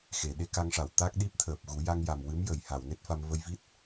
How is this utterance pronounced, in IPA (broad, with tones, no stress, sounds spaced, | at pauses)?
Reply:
x e˨˩˨ ɗ e˧˥ k a˧ ŋ ʂ a˨˩˨ w t̪ a˦˥ k̚ ɗ i˦˥ p̚ t̪ʰ əː˨˩ p̚ ɣ u˨˩˦ j a˧ ŋ j a˨˩ m w ɨ˧˥ m j ə˨˩˨ j h a˨˩˨ w n e˦˥ t̚ f a˧ m v ə˧ j v i˦˥ t̚